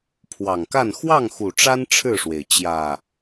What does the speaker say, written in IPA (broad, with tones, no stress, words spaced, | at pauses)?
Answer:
pʰwɑ˨˩ŋka˥˨n xwɑ˥˨ŋxu˨˩ʈ͡ʂa˦n ʈ͡ʂʰɻ̩˥˨ʂwe˩ɪ̯ t͡ɕjä˨˩